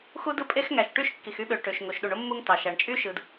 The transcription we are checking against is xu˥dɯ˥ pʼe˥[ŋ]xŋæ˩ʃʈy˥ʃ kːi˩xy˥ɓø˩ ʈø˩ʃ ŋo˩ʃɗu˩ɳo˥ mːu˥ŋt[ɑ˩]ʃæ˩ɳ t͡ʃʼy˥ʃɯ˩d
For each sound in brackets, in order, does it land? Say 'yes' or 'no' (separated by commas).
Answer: no, yes